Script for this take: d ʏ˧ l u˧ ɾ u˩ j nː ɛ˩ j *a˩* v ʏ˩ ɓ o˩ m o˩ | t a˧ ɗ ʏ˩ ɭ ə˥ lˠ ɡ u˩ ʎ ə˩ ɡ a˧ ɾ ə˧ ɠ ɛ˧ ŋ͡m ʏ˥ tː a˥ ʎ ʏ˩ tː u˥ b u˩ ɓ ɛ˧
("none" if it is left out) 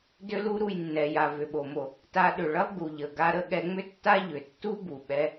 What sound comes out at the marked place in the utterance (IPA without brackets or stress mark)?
a˩